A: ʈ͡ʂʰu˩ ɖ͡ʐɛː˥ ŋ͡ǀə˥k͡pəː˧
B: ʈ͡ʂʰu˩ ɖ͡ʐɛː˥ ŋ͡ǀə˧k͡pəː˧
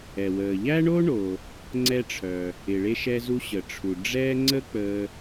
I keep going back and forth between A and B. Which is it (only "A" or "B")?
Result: A